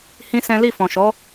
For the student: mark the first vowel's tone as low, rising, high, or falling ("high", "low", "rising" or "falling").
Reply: high